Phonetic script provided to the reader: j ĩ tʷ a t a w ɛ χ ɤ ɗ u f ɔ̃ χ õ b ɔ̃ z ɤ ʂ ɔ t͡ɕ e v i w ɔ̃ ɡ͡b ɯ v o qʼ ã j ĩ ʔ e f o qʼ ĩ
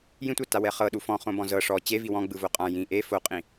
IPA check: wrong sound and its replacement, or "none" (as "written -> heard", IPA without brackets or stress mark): none